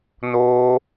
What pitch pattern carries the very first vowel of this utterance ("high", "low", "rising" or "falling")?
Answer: high